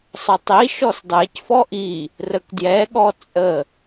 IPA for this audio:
sˤ ə tˤ i ʃ ɔ s dˤ ɛ c f ɔ ʔ i | r ə k d j ɛ ɠ ɔ t͡sʼ ə

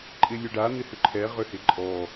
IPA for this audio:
ǃʼ ɪ lʲ ø ɖ a n̪ ɪ h ʏ ǃʰ ɛ ʁ ʏ h ɪ ǃʼ ɔ

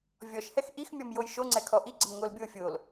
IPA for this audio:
vʲ ɔ ʃ h ɛ x ʔ i x mʲ ɔ m j o j ʃ o ŋ͡ǀ ɛ kʰ ɔ ʔ i ɡ͡ǀ ə m ŋ o l bʲ o fʲ o l

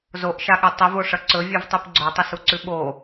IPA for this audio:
z o ʔ ʃ a ɠ ʉ tˤ i v o ʂ ɐ ǀ ɵ vʲ ʉ v tˤ ɨ p ɡ͡ǀ o tˤ ɨ s u ǀ ʉ ɓ o

